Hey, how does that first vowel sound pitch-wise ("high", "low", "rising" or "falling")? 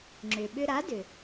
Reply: low